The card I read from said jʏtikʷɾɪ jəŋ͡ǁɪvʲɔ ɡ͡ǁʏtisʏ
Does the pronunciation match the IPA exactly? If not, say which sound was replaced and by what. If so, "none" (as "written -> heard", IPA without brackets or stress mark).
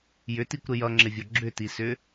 ə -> ʌ